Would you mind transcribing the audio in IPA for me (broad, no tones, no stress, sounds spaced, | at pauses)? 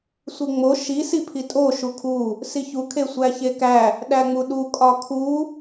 sʷ i ŋ͡m o ʃ i s i pʰ i tʼ o ʃ u kʰ u | s i ç u kʰ e sʷ æ ç e k æ | ɗ æ ŋ͡m u ɗ u kʼ ɒ kʰ u